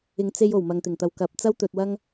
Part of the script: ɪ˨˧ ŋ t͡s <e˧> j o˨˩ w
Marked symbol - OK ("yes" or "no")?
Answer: yes